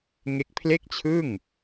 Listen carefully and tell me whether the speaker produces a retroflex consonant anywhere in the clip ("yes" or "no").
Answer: no